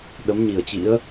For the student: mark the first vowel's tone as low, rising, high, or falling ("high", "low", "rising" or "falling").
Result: rising